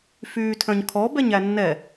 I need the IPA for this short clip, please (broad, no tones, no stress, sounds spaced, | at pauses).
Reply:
f yː tʰ œ̃ ɲ kʰ ɔ b ɛ ɲ æ nː ɛ